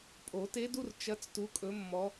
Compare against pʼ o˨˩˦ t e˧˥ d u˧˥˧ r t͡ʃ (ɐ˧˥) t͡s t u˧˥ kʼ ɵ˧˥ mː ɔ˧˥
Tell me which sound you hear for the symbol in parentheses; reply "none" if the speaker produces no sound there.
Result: ɐ˧˥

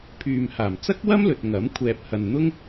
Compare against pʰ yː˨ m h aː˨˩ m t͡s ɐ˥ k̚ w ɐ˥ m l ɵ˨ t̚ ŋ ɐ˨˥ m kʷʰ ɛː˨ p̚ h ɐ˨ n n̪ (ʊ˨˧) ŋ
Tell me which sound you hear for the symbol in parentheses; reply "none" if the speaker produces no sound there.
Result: ʊ˥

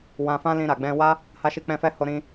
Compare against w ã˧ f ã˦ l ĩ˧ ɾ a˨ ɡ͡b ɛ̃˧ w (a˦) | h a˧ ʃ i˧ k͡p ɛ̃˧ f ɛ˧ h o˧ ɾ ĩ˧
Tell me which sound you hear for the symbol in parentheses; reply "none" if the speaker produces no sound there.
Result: a˦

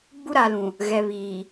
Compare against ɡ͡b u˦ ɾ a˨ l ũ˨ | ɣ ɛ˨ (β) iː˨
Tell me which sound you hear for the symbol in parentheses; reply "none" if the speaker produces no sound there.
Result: β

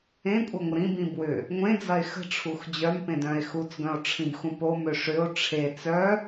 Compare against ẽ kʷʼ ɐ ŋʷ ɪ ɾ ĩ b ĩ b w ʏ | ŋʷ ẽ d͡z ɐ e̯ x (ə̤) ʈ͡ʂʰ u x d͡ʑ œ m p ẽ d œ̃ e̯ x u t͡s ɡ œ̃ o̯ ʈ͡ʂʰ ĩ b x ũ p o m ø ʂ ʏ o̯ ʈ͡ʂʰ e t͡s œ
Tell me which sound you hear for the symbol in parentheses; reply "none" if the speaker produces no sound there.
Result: ə̤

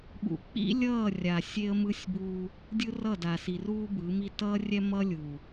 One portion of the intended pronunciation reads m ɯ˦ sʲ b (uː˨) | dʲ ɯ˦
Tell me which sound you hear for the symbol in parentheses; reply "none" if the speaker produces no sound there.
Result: uː˦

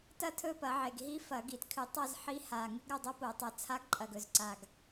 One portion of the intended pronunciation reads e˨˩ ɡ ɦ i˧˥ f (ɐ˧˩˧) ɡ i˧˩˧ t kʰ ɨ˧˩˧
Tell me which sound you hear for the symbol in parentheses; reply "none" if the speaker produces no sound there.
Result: ɐ˧˩˧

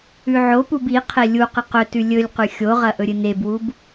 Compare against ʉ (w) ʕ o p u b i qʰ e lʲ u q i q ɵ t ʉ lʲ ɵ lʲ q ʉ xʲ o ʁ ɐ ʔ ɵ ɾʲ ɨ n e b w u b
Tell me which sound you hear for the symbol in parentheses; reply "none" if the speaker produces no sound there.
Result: none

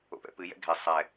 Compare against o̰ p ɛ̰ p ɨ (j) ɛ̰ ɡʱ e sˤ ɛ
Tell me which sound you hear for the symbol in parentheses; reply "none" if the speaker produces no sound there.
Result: j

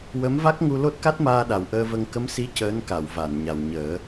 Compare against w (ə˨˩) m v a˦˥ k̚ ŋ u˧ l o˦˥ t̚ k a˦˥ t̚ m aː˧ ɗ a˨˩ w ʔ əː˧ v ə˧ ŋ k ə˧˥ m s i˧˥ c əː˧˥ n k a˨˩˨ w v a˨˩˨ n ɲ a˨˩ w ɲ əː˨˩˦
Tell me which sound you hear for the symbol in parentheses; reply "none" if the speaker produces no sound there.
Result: ə˧˥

